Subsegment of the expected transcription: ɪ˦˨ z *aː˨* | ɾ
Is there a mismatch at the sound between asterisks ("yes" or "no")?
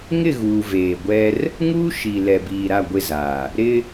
no